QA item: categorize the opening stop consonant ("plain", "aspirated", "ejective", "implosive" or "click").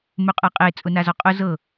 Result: ejective